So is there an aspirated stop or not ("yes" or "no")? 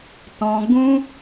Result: no